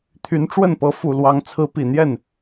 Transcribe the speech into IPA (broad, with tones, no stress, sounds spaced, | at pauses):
t̪ʰ y˨˦ n ʈ͡ʂ w ə˥˨ n p ɤ˨˦ f u˨˩ l w ɑ˨˦ ŋ t͡sʰ ɹ̩˨˦ p i˨˩ n̪ j ɛ˥˨ n